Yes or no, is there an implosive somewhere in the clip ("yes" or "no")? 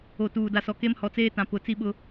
yes